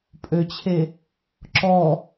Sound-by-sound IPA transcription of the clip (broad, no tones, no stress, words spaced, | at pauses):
pʼøt͡ɕʰe | ǁɔ